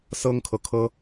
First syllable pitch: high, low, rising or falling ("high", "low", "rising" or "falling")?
high